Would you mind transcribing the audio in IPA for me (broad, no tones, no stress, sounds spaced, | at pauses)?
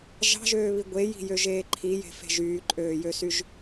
ʒ ɑ̤ ʒ øː β i ɡʷ e j i̤ j ø ʒ eː ǃʰ i j e̤ f e̤ ʒ yː ǃʼ øː j ø s y ʒ